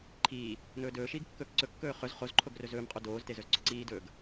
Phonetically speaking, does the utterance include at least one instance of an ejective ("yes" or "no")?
yes